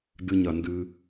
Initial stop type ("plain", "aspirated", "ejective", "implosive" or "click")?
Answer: plain